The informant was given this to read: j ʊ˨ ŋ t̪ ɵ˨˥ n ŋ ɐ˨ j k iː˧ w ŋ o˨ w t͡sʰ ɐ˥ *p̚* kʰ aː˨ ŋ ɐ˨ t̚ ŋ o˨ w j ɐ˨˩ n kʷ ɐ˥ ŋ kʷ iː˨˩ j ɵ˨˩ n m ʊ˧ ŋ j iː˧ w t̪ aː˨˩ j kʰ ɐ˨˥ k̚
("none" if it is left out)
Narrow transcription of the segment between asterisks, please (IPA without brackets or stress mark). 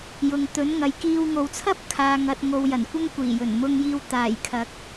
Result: p̚